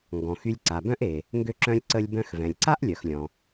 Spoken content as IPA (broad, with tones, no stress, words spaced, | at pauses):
ŋɡɔ̃˩x y˧lʲǀa˩bœ̃˥ʔe˩ | ŋɡø˧ǁœ̃˧lʲǀə˧lʲbœ̃˧x vɛ̃˩lʲǀa˥ʔlʲœ˩x lʲɔ̃˩